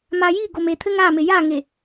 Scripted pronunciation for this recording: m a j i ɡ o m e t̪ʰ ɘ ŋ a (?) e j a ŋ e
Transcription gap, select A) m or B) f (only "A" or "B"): A